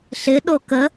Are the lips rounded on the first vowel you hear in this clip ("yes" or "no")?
no